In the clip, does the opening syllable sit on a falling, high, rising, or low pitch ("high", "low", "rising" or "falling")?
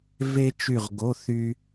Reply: high